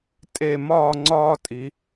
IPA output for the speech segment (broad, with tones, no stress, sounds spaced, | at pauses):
tʼ e˧˩ m ɒː˥˧ ŋ͡ǀ ɒː˥ tʼ i˩˧